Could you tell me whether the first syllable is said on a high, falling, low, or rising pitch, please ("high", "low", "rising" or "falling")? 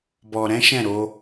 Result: low